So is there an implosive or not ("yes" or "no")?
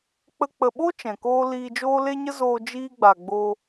yes